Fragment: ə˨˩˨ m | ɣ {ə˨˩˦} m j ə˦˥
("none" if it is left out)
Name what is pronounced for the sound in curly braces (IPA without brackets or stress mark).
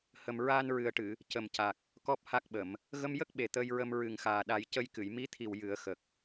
ə˧